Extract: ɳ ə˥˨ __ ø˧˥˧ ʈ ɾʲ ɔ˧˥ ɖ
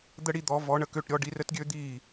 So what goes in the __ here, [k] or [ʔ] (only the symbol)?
k